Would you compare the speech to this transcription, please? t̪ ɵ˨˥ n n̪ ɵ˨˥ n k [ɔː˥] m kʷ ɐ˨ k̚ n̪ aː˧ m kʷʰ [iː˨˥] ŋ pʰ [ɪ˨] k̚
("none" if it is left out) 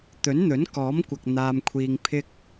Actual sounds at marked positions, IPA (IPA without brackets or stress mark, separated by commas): ɔː˨˥, iː˧, ɪ˥